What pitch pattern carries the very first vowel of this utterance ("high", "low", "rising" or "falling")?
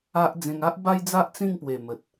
high